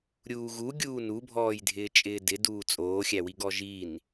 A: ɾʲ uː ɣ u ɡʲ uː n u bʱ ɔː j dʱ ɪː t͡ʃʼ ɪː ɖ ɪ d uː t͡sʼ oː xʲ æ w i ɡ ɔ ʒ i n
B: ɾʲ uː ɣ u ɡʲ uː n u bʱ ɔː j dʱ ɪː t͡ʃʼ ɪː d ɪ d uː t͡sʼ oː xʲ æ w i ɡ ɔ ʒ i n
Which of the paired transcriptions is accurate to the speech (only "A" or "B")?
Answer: B